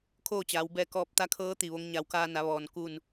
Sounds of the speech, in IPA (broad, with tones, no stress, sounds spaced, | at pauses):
kʰ oː˥˨ t͡ɕ aː˩˧ w b ɛː˧ k ɔː˧˥ p̚ t̪ a˧˥ kʰ ɤː˧˥ t̪ i˧˩ ʋ o˧˥ ŋ ɲ a˩˧ w k aː˧ n a˩˧ ʋ ɔː˩ n k u˧˩ n